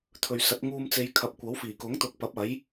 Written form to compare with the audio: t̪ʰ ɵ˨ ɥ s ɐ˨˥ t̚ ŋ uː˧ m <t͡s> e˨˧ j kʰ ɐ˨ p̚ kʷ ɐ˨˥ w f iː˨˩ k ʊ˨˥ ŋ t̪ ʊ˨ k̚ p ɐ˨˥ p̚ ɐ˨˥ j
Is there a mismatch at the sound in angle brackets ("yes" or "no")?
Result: no